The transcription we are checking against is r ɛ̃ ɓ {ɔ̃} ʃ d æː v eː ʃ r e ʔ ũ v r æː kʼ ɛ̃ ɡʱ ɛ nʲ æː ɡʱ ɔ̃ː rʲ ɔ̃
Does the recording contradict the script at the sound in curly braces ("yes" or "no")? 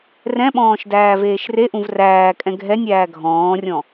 yes